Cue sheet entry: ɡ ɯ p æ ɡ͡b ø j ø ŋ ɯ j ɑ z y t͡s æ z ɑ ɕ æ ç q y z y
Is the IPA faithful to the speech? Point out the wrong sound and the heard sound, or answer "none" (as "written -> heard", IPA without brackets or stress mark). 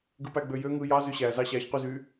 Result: t͡s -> ɕ